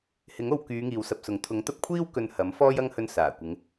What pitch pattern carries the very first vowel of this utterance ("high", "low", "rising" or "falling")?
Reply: rising